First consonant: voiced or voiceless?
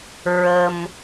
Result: voiced